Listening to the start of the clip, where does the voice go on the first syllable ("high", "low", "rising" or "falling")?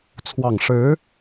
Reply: low